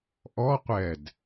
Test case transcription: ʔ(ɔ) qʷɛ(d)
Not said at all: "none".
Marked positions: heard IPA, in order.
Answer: ɔ, d

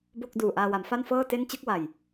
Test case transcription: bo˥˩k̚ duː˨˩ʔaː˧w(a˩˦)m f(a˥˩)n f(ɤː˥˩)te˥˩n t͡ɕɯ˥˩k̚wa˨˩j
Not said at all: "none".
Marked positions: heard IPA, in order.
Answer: a˩˦, a˥˩, ɤː˥˩

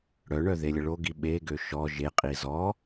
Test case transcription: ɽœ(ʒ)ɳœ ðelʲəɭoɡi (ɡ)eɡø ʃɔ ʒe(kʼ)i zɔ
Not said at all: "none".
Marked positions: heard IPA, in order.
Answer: none, ɓ, qʼ

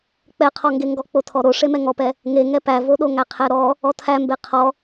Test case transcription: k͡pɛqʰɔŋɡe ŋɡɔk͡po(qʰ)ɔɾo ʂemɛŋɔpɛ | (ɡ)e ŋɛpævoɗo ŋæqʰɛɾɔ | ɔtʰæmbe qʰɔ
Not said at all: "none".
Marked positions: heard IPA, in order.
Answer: tʰ, ŋ

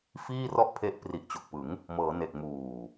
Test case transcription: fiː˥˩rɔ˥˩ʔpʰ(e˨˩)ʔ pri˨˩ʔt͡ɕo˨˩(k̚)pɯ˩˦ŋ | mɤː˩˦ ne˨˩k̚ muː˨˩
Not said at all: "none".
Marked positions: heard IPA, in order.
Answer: e˦˥, k̚

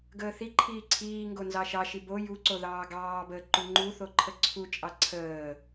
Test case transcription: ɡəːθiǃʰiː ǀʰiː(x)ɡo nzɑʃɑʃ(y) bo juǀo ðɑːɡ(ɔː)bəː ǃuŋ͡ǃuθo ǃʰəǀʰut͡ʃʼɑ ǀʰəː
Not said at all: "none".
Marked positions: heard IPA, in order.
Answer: ŋ, i, ɑː

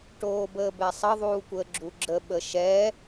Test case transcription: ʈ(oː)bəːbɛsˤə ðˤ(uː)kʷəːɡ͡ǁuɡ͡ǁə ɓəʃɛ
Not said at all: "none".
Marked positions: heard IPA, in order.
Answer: oː, uː

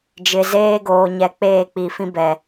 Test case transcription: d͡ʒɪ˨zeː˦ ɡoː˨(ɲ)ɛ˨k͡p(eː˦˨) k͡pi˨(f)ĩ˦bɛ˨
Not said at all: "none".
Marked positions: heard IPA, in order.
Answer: ɲ, eː˦˨, f

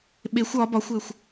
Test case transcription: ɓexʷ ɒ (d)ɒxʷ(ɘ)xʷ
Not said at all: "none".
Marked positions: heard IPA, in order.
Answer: b, ɘ

